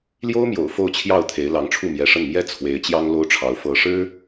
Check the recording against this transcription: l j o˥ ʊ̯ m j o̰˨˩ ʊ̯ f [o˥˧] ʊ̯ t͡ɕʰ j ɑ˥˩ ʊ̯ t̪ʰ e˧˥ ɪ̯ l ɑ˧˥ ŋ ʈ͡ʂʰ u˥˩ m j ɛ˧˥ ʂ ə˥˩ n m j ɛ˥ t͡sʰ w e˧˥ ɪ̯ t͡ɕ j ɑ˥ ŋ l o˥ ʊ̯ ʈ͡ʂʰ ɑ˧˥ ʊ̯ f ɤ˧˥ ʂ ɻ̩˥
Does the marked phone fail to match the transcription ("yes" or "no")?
no